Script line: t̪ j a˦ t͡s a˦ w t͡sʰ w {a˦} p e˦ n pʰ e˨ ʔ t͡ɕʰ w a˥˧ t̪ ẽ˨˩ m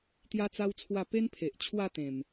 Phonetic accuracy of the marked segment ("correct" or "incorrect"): incorrect